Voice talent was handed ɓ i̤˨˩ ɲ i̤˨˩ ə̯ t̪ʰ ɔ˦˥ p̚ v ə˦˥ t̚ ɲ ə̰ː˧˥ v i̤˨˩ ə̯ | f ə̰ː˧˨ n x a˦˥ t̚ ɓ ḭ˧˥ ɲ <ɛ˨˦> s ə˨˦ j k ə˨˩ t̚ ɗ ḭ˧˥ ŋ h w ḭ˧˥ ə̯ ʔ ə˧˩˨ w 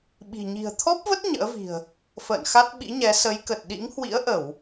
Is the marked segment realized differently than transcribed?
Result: no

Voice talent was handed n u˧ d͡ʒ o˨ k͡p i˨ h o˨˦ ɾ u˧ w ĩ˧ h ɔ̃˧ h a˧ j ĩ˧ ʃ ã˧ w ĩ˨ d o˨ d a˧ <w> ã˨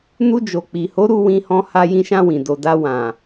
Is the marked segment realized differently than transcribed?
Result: no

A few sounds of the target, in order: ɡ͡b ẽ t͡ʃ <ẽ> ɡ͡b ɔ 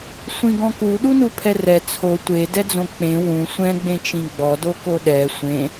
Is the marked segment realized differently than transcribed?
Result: yes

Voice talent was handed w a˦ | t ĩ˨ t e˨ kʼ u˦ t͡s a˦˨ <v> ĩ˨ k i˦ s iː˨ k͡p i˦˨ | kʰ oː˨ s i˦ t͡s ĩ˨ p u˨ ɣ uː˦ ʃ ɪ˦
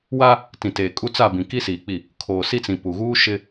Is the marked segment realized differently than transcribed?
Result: yes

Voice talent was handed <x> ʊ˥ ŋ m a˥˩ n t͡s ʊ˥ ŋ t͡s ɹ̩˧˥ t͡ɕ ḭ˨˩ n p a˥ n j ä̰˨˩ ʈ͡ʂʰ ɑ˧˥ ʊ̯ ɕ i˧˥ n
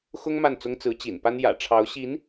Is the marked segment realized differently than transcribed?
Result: no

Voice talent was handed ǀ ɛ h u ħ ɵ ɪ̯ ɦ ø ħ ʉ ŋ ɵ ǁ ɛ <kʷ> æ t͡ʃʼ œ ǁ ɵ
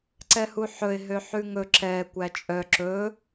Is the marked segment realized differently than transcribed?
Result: no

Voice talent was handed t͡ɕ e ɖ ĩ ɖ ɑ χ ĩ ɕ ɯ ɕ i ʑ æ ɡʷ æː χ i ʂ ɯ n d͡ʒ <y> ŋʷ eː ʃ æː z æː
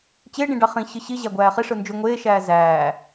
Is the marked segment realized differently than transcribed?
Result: no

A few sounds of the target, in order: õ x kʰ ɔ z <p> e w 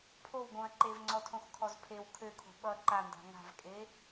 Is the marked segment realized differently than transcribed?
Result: yes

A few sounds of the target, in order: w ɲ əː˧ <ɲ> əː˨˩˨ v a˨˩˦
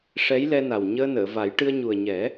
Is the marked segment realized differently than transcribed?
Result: yes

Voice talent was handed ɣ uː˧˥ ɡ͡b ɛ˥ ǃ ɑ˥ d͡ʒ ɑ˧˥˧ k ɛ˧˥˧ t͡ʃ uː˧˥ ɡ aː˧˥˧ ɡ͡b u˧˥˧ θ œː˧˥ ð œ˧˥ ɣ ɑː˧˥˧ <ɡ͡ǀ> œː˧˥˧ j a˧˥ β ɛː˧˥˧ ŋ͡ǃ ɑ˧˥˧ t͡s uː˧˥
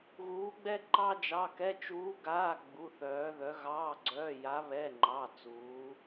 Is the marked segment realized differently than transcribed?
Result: no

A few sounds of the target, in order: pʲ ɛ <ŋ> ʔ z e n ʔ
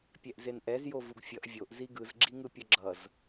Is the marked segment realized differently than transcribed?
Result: yes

